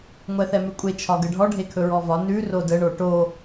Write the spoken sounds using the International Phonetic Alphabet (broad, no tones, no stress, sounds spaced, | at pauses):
ŋʷ ɛ θ ɛ m ʉ kʷʼ e t͡ʃʰ ɒ ɡ ə ɖʱ ɔ ɖʱ e kʰ ɵ ɹ ɔ v ɒ n ʉ r o d ə ɳ o ʈ o